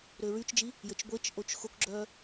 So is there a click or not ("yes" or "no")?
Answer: yes